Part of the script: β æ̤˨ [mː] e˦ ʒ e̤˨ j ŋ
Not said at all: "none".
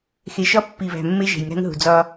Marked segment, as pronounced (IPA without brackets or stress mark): mː